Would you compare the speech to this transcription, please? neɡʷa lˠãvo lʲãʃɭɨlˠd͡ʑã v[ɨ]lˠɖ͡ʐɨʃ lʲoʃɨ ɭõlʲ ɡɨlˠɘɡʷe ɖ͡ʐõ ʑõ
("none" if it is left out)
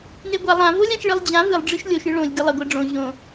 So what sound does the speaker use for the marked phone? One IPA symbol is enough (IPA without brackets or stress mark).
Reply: ɨ